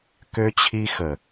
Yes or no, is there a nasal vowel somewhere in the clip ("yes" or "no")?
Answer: no